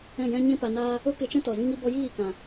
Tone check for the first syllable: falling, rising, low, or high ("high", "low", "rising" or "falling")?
falling